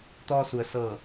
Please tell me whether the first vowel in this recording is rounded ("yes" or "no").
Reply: yes